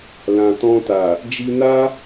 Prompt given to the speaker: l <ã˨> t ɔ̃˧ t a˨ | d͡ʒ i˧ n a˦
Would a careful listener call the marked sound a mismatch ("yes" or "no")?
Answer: no